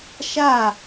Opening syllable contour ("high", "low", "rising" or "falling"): falling